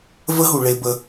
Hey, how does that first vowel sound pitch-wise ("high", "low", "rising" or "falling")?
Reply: high